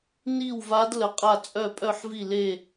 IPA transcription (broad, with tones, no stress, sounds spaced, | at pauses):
n i˥˧ w v a˦˥ d l ə˦˥ qʼ a˥˧ t͡sʼ œ˥˧ pʼ œ˥˧ ħ v i˥˧ l e˥˧